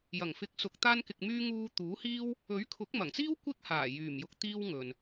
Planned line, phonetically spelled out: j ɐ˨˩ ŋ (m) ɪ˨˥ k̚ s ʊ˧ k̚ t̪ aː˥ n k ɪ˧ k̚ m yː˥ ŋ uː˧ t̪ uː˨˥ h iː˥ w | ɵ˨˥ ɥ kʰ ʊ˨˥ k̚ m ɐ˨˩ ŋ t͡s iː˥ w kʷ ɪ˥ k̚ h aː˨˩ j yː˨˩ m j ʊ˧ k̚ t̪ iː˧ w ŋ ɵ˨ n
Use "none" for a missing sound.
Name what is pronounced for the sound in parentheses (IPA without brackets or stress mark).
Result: f